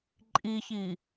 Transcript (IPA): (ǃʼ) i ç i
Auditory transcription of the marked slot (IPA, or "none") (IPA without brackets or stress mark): ǃʼ